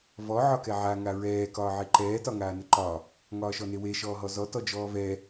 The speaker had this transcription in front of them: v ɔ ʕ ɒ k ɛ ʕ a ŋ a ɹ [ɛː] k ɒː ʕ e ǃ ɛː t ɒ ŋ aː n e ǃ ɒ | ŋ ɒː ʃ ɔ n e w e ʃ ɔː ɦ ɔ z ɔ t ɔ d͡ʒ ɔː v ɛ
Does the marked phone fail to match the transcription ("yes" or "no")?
no